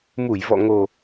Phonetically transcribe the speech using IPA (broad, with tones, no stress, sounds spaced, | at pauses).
m u˧˩ j v ɔ̰˧˨ ŋ o˨˩